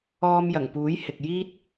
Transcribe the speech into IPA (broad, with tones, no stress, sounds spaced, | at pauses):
ɔː˧ m j ɐ˨˩ ŋ p uː˨˥ j h ɪ˨ k̚ j iː˧ t̚